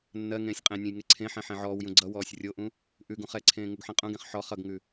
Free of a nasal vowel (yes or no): no